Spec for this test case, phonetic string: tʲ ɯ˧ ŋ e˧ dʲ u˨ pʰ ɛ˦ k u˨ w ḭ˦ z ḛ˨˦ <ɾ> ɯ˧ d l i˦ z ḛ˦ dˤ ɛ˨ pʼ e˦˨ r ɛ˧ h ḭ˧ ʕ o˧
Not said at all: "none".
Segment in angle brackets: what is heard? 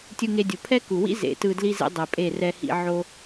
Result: t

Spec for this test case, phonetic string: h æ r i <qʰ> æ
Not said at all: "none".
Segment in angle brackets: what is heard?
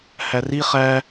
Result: χ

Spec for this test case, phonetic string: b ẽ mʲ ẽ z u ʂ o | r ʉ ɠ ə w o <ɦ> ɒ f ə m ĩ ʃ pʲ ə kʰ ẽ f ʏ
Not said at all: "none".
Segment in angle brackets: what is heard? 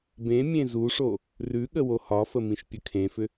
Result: h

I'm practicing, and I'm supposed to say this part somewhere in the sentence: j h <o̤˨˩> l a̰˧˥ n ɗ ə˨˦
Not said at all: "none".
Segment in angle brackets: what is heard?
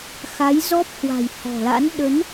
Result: ɔ̤˨˩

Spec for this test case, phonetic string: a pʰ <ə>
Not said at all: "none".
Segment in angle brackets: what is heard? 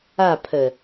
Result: ə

